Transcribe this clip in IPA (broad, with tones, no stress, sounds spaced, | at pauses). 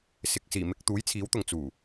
s ɪ˨ k̚ s iː˨˩ m ɪ˧ k̚ t̪ uː˨˥ j t͡sʰ iː˨˥ w t̪ ʊ˨ ŋ t͡s uː˨˩